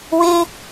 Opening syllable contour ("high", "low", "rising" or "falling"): high